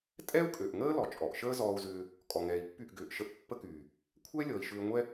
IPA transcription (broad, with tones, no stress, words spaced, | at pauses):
tʼɛ˦u̯kʼø˨ʔŋəː˦ lɔ˨t͡ʃʼɔ˨ʔ ʃəː˦zɔː˧u̯zʏː˧ | kʼɔ˨ŋɛː˨i̯pːy˦˨ʔ ɡʏː˨ʔʃə˧ʔ pːə˦kyː˨ | kʷʰɛ˦lʲɔ˨i̯ʃʏː˧ŋʷɛ˦